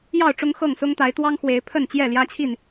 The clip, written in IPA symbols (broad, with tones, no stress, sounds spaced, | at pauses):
j ɑ˥˨ ʊ̯ ʈ͡ʂ ʊ˦ ŋ x ɤ˥˨ ŋ s ʊ˦ ŋ t̪ a˨˦ ɪ̯ t̪ w ɑ˦ ŋ x w e˨˦ ɪ̯ pʰ ə˥˨ n t͡ɕ j ɛ˥˨ l j ä˦ t͡ɕʰ i˥˨ n